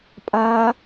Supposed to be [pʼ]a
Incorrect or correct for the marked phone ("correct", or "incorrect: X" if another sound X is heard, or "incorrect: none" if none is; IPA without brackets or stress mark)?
correct